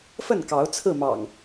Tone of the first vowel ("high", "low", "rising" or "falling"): falling